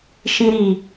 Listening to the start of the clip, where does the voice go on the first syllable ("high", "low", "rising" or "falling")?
high